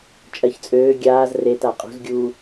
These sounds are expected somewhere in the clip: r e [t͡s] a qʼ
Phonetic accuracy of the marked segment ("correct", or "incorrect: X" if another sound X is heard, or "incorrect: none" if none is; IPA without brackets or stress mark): incorrect: t